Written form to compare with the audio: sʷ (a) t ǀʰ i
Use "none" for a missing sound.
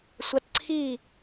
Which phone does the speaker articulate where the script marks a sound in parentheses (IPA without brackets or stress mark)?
a